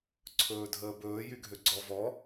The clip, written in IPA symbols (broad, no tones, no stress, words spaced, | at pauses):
ǀʰɵːdʱəːbɵː jyɡʱøɡ͡ǀɔ vɔ